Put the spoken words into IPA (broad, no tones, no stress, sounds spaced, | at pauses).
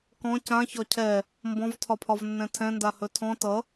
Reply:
k ɔ̃ c ã ç ɒ cʰ ɛ | m b ɔ̃ v tʰ ɒ pʰ ɒ v nː ɛ̃ tʰ ɛ̃ n d a h ɵ tʰ ɔ̃ t ʌ